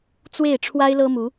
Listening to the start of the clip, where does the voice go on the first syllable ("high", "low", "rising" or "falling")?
falling